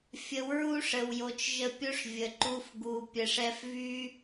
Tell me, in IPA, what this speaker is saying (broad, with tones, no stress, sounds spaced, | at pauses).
fʲ ə˨˦ w ɹ u˦ ʂ ə˨ w j o˨ t͡ʃ ʒ ə˧ pʲ o˦ ʂ vʲ ə˨ ǃ u˧ f ɡ u˨ pʲ ə˨ ʂ ɛ˧ f v y˦